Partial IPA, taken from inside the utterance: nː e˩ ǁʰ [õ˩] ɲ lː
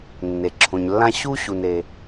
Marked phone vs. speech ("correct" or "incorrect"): correct